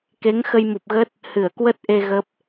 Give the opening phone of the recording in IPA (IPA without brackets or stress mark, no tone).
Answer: k